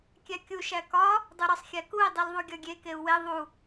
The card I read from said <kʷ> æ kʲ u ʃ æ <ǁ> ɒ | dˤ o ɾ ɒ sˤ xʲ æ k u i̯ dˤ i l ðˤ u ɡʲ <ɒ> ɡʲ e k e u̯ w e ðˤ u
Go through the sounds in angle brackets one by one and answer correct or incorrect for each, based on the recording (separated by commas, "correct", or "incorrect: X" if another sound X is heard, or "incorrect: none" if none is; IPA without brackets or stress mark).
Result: incorrect: kʲ, incorrect: k, correct